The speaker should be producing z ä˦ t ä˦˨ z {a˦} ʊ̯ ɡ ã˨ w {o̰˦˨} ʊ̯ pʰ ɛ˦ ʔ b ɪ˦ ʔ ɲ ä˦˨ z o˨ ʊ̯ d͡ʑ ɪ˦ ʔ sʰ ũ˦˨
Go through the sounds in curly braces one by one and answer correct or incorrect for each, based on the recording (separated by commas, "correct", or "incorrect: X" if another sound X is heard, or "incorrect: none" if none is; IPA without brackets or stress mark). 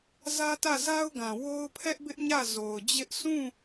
correct, incorrect: o˦